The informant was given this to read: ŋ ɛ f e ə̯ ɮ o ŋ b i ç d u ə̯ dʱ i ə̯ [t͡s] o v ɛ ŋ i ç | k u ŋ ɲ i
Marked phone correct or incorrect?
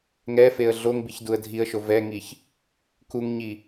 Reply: incorrect: ʃ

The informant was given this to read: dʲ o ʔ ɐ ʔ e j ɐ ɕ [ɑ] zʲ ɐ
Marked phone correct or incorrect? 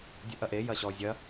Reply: incorrect: ɔ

